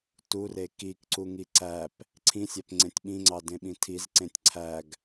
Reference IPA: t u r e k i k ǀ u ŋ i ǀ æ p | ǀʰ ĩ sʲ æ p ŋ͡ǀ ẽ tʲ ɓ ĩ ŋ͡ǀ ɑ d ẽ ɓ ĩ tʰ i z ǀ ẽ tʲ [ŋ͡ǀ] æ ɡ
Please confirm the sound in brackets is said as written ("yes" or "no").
no